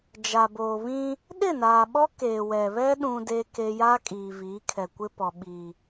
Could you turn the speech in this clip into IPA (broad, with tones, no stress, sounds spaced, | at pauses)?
d͡ʒ a˨ b oː˨ β ĩ˦ | ɗ ɪ˦˨ n aː˨ ɓ ɔ˦ k eː˨ w ɛ˨ β ɛ˦ ɗ ũ˦ d e˦ k e˦ j aː˦ kʼ iː˨ v iː˨˦ kʰ ɛ˨ kʷ ɪ˦ p ɔ˨ ɓ iː˨